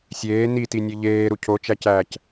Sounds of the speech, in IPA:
sʲ eː n i t i nʲ e ʎ eː ɾ u cʰ o t͡ʃ æ c æː c

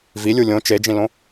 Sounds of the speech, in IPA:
v i lʲ u lʲ õ t͡ʃ e d͡ʒ ĩ l õ

